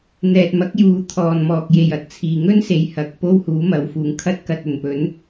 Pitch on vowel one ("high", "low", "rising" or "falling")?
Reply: low